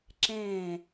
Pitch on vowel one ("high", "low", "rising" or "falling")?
falling